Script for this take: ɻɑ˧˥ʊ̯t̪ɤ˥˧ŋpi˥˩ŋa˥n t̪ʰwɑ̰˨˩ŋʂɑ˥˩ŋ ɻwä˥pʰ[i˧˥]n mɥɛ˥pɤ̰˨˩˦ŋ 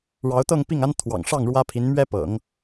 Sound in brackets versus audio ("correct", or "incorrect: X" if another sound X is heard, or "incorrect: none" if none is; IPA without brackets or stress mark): correct